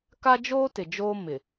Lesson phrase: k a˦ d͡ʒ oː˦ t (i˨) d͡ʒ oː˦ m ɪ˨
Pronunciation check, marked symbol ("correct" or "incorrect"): incorrect